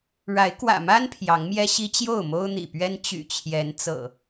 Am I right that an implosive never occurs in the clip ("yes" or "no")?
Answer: yes